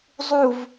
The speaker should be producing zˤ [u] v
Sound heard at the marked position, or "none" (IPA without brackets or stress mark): u